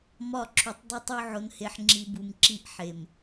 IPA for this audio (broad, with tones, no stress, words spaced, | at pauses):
mɒ˦˨ǁʰu˨tˤdˤu˦tˤo˦ ʕo˨nhe˨ħŋ͡ǁi˨ bu˨mǁi˦ʔħe˨m